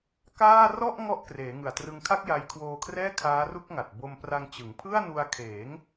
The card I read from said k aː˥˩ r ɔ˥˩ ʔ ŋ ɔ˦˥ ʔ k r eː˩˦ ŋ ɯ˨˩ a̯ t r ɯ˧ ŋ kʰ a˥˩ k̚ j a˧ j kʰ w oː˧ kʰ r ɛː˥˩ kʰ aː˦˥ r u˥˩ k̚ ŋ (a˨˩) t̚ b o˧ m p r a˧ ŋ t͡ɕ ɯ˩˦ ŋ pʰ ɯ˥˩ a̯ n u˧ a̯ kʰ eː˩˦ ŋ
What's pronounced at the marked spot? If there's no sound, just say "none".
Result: a˨˩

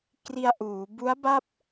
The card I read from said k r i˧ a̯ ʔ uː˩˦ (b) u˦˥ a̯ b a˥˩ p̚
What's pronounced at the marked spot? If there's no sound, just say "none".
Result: b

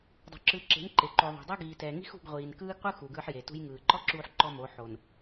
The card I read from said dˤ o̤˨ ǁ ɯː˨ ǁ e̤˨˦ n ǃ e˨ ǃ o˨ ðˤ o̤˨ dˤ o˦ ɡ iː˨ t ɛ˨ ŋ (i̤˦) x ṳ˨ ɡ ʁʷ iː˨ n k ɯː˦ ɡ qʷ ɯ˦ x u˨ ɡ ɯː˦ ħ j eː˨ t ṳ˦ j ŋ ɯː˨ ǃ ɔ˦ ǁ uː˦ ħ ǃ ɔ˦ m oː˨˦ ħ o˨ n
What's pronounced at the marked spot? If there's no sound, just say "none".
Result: i̤˦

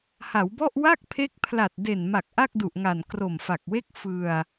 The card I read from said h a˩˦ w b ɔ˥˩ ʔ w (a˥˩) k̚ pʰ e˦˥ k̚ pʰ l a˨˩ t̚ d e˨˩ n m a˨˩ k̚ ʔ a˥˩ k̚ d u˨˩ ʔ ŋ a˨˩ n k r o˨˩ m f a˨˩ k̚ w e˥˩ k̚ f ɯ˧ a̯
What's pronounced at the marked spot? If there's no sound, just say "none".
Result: a˥˩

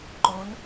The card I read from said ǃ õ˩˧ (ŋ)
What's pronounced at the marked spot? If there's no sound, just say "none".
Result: n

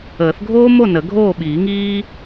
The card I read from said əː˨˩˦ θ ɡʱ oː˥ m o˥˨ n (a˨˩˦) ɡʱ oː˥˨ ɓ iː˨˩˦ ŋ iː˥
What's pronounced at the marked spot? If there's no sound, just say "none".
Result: ə˨˩˦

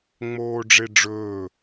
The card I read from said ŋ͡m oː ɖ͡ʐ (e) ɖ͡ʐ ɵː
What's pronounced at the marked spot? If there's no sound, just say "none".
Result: e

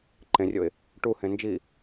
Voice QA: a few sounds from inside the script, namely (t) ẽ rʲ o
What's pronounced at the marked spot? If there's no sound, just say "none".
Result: ǃ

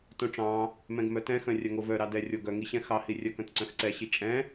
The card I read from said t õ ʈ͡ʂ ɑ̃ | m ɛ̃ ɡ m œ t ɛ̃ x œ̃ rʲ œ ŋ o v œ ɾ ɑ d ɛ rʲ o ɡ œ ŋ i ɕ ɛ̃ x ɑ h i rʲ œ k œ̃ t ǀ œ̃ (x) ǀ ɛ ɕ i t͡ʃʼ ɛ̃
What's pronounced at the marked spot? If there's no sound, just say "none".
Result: x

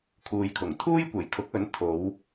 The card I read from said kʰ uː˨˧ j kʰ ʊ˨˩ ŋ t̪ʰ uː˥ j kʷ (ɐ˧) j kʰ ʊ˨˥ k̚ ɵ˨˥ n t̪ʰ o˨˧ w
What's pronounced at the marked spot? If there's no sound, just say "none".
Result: ɐ˨˩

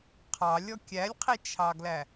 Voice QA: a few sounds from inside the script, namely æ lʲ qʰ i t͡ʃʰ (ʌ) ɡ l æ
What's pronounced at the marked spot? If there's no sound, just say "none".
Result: ɑ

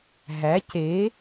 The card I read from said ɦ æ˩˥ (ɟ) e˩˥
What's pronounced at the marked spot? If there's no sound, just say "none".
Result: c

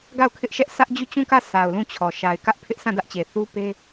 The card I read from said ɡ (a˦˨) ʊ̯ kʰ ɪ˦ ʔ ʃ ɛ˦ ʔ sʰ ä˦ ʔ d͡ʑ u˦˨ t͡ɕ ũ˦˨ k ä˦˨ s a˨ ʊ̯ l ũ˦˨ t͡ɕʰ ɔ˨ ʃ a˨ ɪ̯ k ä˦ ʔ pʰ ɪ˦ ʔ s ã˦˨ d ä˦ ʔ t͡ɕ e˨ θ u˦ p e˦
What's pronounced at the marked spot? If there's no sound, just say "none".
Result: a˦˨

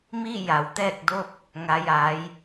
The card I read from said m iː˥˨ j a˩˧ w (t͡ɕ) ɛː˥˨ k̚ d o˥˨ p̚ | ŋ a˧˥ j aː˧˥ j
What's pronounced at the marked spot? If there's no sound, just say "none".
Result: t̪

